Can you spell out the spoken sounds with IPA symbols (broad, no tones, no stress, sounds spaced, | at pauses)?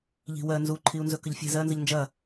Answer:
ʎ i̤ w ɜ n z u ǃʰ i u̯ n z ɵ k ə ʎ fʲ ɛ̤ z ɜ n z ə ʎ n d͡ʒ ɐ